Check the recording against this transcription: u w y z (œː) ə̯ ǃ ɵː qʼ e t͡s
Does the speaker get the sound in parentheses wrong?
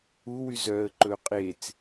no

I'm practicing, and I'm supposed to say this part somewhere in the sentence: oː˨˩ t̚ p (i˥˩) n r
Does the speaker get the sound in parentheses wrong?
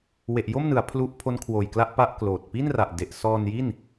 no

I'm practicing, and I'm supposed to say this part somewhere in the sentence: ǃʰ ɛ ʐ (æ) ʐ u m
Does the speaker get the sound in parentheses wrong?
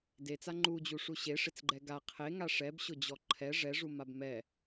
yes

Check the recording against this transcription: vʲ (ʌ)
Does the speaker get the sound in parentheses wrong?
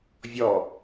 yes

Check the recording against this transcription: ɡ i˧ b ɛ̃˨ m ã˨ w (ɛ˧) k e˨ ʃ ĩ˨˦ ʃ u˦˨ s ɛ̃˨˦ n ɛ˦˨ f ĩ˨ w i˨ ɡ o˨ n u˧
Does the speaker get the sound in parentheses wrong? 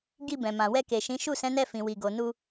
no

